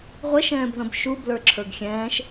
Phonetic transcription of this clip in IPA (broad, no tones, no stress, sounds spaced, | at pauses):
ʁʷ ɛ ʃ ɛ̃ː b ð ə̃ b ʃ u b l ə˞ ǁʰ ə˞ ɡ xʲ ɛ̃ː ʃ